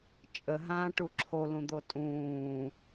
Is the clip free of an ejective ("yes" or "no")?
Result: no